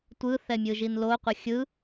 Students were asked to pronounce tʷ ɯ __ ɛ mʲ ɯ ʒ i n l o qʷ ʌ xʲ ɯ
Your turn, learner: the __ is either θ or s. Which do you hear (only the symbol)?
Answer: θ